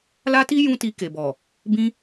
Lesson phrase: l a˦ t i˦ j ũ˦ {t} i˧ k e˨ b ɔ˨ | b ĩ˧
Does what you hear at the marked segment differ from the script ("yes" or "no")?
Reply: no